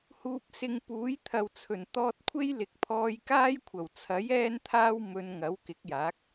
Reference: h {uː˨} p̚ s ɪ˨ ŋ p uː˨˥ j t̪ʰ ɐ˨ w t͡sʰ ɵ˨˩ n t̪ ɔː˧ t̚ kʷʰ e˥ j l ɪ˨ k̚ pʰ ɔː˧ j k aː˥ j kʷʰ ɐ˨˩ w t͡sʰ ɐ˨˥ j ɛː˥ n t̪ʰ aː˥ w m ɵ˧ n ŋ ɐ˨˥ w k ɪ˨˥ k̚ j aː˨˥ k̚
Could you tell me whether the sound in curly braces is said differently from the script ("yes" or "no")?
no